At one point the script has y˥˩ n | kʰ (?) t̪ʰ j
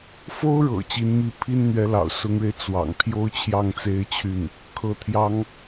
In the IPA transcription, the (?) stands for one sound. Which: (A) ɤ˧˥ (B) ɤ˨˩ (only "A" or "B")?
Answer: A